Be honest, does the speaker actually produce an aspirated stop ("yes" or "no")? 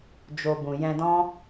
no